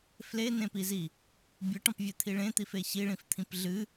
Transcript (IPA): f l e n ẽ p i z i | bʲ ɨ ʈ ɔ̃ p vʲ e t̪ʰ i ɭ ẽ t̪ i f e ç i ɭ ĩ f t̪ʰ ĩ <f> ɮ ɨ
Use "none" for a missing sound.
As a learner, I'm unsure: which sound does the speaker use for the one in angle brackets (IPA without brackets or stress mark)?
p